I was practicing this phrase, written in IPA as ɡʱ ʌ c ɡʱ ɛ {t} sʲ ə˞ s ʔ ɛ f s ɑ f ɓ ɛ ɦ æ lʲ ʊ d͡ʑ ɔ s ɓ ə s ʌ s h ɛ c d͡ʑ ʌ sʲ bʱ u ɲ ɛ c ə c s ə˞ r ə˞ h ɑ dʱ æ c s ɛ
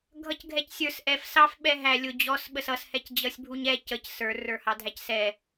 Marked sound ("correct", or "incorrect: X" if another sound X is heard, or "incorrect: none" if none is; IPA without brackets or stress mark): incorrect: c